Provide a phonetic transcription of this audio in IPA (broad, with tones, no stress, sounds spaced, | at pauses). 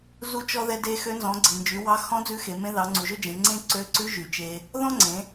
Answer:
z u˧ t͡ʃ ɔ˧ ð ɛ˧ d e˧ x ø˧˥ n z ɔ̃˩˧ ɡ͡ǀ i˩ n d͡ʒ y˩˧ w ɑ˧˥ x ɔ̃˧˥ d͡z ʉ˧˥ x e˩˧ m ẽ˧˥ ð ɑ˩˧ ŋ͡ǀ u˩ ʒ ɵ˥ d͡ʒ ẽ˩˧ ŋ͡ǀ ẽ˥ ǀ ø˧˥ ǀ ʉ˧˥ ʒ y˩ t͡ʃ e˧ | ð ɔ̃˥ ŋ͡ǀ ẽ˩˧